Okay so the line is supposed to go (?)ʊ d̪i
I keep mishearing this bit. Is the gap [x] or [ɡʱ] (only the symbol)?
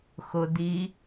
x